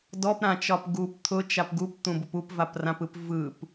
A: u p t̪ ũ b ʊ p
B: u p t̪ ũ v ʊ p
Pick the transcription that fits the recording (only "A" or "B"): A